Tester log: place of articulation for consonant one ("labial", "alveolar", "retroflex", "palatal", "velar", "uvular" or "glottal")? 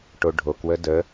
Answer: retroflex